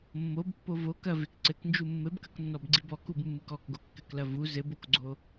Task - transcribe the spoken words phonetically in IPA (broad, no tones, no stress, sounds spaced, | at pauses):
mː o b pː o v o k ɐ v e k ǀ ɘ k n d͡ʒ u mː ɘ b k ɐ k nː ɔ b ɡ͡ǀ i b ɔ k u b mː ɨ k ɔ k ɡ o kː ɘ k l ɐ v u z ɘ b o k ɡ͡ǀ o